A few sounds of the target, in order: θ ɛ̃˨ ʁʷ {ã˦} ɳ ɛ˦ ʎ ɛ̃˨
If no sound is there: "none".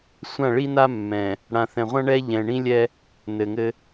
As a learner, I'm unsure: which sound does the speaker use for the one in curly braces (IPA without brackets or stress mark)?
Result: ã˦